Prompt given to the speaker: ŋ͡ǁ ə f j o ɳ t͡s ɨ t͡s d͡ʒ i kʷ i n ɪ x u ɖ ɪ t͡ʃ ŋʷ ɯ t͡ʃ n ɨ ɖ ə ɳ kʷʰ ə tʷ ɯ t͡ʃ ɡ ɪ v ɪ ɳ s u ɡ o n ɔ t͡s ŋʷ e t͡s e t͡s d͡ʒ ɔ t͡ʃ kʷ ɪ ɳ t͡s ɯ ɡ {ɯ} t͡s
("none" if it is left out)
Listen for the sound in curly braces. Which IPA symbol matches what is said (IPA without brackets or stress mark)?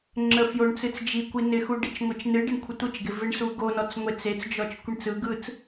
ɯ